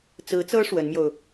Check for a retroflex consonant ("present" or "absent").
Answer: present